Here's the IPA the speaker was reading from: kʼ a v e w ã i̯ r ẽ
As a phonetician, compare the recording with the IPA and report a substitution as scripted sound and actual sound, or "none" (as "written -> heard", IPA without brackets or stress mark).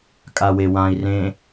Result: v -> w